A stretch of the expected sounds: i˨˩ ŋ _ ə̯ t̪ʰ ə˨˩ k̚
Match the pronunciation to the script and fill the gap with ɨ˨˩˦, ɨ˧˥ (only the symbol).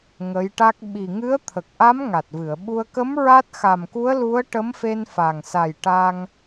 ɨ˧˥